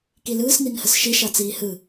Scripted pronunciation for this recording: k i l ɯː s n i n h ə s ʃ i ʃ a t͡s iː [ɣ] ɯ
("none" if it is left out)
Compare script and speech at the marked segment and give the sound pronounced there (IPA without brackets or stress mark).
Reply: h